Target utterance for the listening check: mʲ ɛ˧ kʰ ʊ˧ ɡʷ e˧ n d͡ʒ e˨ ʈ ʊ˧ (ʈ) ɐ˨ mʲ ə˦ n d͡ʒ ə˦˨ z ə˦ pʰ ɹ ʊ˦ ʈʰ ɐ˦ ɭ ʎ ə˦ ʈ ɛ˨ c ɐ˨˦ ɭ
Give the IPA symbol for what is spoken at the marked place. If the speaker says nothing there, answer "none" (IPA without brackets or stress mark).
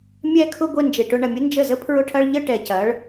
ɳ